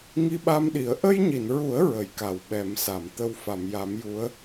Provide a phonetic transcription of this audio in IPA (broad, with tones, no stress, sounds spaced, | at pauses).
ŋ i˧ ɓ a˧ m ɗ i˨˩˦ ə̯ ʔ ə˧ j ɲ i˨˩˨ n ɹ u˨˩˦ ə̯ ɹ ə˨˩˨ j k a˨˩˨ w ɓ ɛ˨˩˦ m s a˨˩˨ m t̪ ə˧ w f a˨˩˨ m j a˨˩˦ m j u˧˥ ə̯